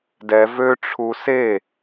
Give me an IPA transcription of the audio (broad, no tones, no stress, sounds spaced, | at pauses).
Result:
d ɛ v ø ʈ͡ʂʰ u s e